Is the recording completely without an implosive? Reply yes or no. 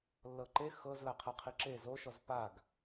yes